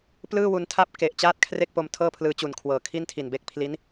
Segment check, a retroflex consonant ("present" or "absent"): absent